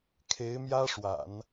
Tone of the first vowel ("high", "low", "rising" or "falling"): rising